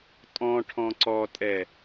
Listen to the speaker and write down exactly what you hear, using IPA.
tʼ ɔ̃ ʈʰ ɔ̃ ǀ ɔ tʼ ɛ

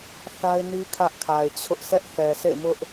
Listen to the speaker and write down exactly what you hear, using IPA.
θ a˦ ɪ̯ n i˦ kʰ ä˦ ʔ kʰ a˨ ɪ̯ t͡ɕʰ ʊ˦ ʔ s ɛ˦ ʔ θ ɛ˨ s ḛ˦˨ ɪ̯ m ʊ˦ ʔ

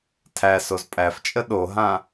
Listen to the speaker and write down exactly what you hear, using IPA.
tʰ æ s o z pʼ æ f t͡ʃʼ ə ɗ o ɦ ã

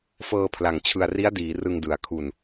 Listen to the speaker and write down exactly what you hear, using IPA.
f ɤː˧ pʰ l a˨˩ ŋ t͡ɕʰ ɯ˨˩ a̯ r i˦˥ a̯ d iː˩˦ r ɯ˧ ŋ d ɯ˨˩ a̯ kʰ u˧ n

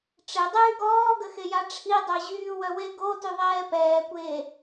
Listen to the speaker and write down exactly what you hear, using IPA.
ʈ͡ʂ e dˤ yː ɡ ɔː ɡ ə x e j a ʈ͡ʂʰ i dˤ œ ʑ yː w œ w e ɡ o t y ðˤ ɛː p ɛː kʷ eː

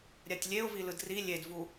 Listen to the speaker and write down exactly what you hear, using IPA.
ɾʲ a tʲ lʲ e ʊ̯ v i l ɯ d r i lʲ e d v u

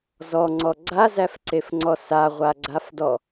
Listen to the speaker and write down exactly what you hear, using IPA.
z ɔ ŋ͡ǀ ɔ ɡ͡ǀ a z æ f ǀ e f ŋ͡ǀ ɔ s a ʁʷ a ɡ͡ǀ a f d ɔ

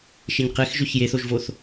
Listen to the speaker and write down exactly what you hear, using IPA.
ʃ e ɲ q e x ʒ ø ç j e θ o ʒ v o θ

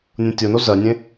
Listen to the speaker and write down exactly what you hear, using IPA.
nʲ õ tʲ o n o z ɜ nʲ ẽ

